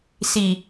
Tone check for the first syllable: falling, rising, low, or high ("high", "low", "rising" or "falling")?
low